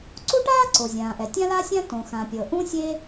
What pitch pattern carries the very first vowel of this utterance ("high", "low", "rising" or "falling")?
high